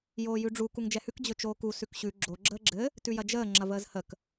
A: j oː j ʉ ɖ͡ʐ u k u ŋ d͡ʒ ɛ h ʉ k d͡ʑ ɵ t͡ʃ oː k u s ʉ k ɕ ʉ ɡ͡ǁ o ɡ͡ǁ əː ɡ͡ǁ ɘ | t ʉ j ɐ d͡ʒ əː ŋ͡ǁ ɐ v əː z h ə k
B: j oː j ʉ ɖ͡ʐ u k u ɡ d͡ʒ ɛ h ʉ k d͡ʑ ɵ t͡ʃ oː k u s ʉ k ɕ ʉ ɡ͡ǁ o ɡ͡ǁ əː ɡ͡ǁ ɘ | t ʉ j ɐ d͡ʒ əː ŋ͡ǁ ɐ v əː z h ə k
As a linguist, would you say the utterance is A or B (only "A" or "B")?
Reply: A